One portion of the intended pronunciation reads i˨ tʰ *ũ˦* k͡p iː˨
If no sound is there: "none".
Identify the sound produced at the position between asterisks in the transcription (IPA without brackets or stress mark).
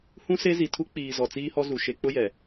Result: u˦